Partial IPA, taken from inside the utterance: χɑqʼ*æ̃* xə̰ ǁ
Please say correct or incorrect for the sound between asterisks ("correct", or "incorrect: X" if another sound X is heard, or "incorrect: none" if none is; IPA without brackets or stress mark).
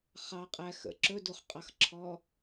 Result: incorrect: æ